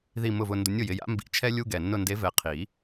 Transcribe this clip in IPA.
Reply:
ð i˨˩ m ʊ˨˩ v ʊ˨˩ n d ʊ˨˦ nʲ ʊ˨˩ j ɪ˦˨ j a̰˨˦ m b ḭ˨˦ t͡ʃʰ ɛ˦ lʲ u˦ ɡ ɛ˨˩ nː ʊ˦˨ n d e˨˦ v ɛ˨˩ qʰ i˨˩˦

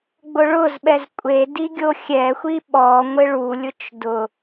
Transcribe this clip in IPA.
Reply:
ɡ͡b ʊ ɭ ʊ z ɓ ɛ z kʷʼ e d i ɡʲ o xʲ ɛ xʷ i ɓ ɔ ŋʷ ɪ ɭ u lʲ ʊ t͡ʃ d ʊ

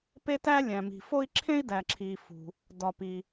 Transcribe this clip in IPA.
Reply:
p e˦ t æ˦ lʲ æ̃˨ m i̤˨ f o˥ i̯ ǁʰ ẽ˥ i̯ d æ˨ ǁʰ i˨ f ṳ˨ | d ɒ˨ p i˨

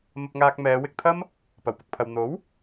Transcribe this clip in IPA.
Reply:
m ɐ˧ p̚ ŋ aː˧ k̚ m ɛː˨˧ w ɪ˧ k̚ t̪ʰ ɐ˥ m | p ɐ˨˩ w p ʊ˨ k̚ pʰ ɐ˨ w n̪ o˨˥ w

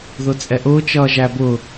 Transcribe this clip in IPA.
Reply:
ð ʊ t͡sʼ ɛ ʔ ʊː t͡ʃ ʌː ʒ æ b ʊ

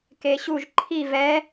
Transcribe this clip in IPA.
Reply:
k e ɕ u ʒ ǃʰ i v ɛ

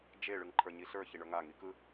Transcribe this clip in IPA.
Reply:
d͡ʒ e ɭ ɯ ŋ ǃʰ ə˞ ɲ i ɬ ə˞ ç i ɳ ə˞ ŋ a ŋ i k ɯ

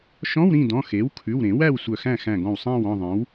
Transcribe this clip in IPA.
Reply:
ʃ ɔ̃˧˥˧ w ɾ ĩ˥˨ d ɔ̃˩˧˩ x e˩˥ w kʰ ʉ˩˧˩ w ɾ ẽ˨˩˦ w æ˥˨ w sʷ œ˧˩ x æ̃˥˨ x æ̃˧˩ ɡ ɔ̃˧˩ w sˤ æ̃˥˨ w ɔ̃˥˨ ðˤ ẽ˩˥ w

